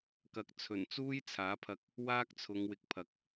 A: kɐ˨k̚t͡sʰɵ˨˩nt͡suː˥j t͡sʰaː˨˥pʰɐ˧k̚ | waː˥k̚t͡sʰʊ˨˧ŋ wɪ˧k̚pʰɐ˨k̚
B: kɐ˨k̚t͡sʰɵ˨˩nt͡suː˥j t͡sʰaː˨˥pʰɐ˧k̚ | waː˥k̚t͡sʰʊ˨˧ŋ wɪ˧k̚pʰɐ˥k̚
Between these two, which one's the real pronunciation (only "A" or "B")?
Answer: A